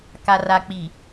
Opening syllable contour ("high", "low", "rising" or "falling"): low